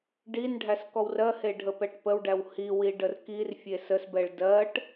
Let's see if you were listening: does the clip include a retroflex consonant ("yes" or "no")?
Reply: yes